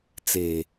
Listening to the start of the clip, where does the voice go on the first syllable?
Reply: low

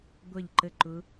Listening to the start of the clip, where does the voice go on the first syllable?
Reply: falling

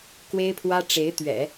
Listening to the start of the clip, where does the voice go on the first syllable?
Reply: high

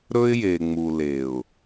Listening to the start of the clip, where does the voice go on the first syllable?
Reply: high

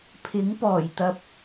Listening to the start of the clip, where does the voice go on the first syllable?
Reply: rising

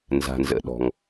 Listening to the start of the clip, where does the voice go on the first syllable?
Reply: low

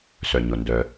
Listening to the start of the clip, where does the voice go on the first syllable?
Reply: low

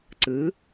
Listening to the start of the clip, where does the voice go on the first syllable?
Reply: rising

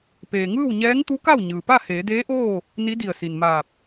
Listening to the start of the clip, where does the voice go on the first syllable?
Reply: low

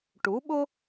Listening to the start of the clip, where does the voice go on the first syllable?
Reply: rising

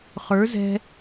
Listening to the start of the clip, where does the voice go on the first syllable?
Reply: rising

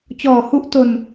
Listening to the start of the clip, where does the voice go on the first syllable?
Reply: low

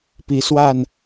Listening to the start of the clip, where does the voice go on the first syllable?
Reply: rising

